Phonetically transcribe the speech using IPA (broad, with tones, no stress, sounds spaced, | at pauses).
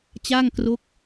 t͡ɕ aː˥˩ ŋ k r o˦˥ k̚